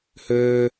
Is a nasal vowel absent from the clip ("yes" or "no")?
yes